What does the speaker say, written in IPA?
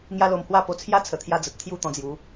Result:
ŋja˦lo˧mhwa˥˧po˧ t͡sʰja˦t͡sʰə˨˩t̪ʰja˧ d͡zə˨t̚t̪ʰju˥˧ t̪ɔ̃˧d͡zju˨˦

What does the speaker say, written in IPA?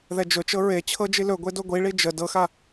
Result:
ðɛd͡ʒɵt͡ʃɤ ɹe t͡ɕʰɤd͡ʒilɵ ɡʷedoɡʷiɭi d͡ʒə dɤxa

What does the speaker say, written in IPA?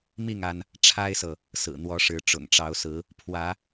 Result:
mi˥˨ŋ a˦n | ʈ͡ʂʰa˦ɪ̯sɤ˨ | sɹ̩˨˩n̪wɔ˨˦ʂɻ̩˨˦ ʈ͡ʂʊ̰˨˩ŋʈ͡ʂɑ˨˦ʊ̯sɹ̩˨˦ | pʰwä˨˦

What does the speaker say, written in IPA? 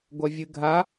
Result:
ɡʷɐvʲɨɡʱa

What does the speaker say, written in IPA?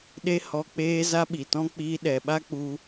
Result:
ɗe˦hɔ˧k͡peː˦ za˦ɓi˨tɔ̃˦ k͡piː˧ɗɛ˨ɓa˦ k͡pu˦

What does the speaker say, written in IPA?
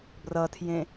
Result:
brʌtʰjẽ

